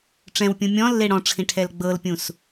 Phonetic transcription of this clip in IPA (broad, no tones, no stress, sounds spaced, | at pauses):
ʈ͡ʂ ɛ̃ w pʲ ũ mʲ ɔ̃ lː e ɽ ɔ̃ ʈ͡ʂʰ ĩ ʈʰ ɛ l ɡ͡b ɤ l pʲ ũ s